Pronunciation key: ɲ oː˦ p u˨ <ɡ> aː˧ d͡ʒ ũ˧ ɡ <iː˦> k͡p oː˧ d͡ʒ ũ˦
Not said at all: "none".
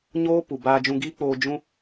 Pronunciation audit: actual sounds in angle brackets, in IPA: b, iː˦

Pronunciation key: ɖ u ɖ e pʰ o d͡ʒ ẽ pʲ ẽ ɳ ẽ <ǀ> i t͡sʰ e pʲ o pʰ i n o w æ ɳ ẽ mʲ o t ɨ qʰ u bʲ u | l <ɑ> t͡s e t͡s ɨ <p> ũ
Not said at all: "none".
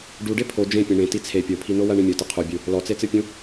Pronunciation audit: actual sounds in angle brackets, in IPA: t, ɔ, pʲ

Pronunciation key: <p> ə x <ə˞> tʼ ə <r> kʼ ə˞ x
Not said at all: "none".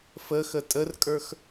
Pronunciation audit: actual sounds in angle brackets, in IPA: f, ə, r

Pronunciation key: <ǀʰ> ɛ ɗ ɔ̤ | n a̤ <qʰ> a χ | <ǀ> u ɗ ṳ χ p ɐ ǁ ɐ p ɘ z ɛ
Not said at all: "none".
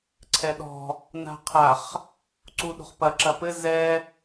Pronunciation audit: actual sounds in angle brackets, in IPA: ǀʰ, qʰ, ǀ

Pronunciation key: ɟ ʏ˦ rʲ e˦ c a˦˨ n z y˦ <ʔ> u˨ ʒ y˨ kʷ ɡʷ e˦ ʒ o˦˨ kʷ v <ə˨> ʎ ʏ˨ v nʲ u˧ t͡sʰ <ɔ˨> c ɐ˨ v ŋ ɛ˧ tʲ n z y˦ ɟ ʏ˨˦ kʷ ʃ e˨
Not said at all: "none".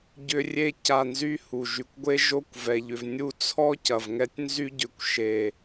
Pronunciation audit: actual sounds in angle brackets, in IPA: h, ɛ˨, ɔ˦

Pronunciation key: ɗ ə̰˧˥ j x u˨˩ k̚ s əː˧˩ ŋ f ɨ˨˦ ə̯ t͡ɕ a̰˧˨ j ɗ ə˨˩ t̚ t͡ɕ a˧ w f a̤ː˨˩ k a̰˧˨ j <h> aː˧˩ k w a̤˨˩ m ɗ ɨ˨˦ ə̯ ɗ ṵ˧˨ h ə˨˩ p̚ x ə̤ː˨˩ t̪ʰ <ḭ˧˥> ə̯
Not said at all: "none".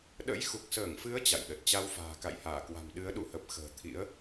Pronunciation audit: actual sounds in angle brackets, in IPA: h, ḭ˧˥

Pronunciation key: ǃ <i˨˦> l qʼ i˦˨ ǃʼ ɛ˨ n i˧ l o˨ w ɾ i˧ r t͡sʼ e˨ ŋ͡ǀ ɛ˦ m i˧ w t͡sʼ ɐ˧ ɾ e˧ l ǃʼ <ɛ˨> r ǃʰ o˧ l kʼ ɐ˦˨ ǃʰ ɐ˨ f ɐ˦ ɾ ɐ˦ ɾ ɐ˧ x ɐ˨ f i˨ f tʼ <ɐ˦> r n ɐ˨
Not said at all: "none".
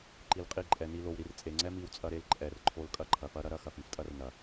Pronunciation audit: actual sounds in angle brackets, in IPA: i˧, ɛ˨, ɐ˦

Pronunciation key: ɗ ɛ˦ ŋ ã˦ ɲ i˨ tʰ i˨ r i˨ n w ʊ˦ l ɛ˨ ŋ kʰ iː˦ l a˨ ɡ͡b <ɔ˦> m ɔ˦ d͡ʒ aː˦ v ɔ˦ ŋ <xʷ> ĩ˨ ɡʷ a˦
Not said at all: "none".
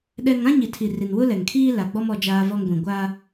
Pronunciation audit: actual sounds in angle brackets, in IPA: ɔ˦, ɡʷ

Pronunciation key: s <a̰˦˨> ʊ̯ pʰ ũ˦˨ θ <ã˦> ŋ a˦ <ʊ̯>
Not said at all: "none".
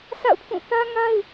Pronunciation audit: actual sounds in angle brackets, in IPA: a̰˦˨, ä˦, ɪ̯

